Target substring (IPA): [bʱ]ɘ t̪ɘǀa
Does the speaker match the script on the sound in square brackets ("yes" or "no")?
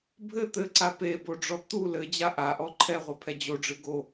yes